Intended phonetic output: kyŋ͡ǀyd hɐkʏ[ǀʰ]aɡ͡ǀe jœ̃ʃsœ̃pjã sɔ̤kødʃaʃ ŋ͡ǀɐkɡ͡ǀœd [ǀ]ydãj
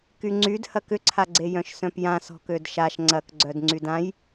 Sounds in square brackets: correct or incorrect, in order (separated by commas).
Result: correct, incorrect